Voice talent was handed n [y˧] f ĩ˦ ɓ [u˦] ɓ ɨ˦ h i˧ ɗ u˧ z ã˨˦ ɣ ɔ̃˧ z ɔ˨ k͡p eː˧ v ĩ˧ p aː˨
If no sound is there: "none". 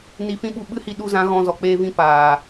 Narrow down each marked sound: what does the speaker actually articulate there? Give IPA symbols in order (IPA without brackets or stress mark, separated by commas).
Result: i˧, u˧